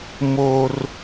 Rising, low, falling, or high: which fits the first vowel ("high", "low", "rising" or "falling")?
high